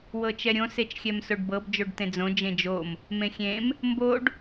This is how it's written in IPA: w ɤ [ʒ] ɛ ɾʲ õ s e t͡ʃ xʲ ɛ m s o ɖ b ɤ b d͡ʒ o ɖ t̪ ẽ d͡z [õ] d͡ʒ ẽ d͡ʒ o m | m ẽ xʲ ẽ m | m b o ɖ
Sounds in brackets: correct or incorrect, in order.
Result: incorrect: t͡ʃ, correct

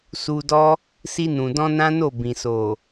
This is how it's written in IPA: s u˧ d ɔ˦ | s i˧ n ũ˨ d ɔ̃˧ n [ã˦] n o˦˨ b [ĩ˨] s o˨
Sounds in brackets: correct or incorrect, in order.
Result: correct, correct

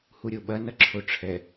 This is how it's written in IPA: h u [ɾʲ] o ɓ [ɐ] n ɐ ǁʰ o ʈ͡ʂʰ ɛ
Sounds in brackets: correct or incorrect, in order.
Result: correct, correct

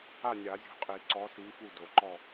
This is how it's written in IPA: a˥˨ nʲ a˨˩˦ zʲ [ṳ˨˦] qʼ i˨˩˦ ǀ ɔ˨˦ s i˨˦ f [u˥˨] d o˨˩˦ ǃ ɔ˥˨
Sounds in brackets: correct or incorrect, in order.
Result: correct, correct

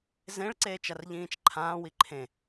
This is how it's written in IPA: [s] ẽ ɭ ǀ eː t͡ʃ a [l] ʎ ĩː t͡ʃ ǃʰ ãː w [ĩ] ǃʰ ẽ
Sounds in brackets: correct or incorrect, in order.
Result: incorrect: z, incorrect: r, incorrect: i

